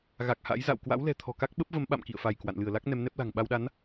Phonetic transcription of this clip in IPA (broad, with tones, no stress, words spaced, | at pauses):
ɣa˨˩k̚ha̰˧˥j za̰˧˨w kwa̰˧˥wlɛ̤˨˩ t̪ʰɔ̤˨˩ka˦˥k̚ɓə˦˥p̚və˨˦m ɓa̰˧˨mkḭ˧˨ə̯fa˧˩jkwa̰˧˨n lɨ˧˩ə̯la˦˥k̚ nɛ˨˦mnɛ˦˥p̚la̤˨˩ŋ ɓa˧wɗa˨˦n